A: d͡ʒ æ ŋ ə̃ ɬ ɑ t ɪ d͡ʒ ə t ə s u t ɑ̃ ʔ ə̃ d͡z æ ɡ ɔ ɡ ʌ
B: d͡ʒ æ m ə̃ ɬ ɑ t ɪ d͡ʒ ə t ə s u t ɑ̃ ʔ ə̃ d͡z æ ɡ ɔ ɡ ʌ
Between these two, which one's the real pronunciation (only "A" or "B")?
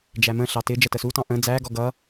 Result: B